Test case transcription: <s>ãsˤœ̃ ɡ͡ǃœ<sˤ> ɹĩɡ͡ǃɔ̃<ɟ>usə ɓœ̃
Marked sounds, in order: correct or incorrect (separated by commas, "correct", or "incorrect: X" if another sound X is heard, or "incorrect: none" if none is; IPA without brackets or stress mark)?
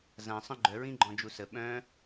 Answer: incorrect: z, incorrect: none, incorrect: d͡ʒ